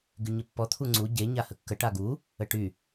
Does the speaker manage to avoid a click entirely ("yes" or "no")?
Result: no